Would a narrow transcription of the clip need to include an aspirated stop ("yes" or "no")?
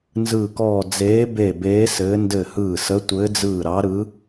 no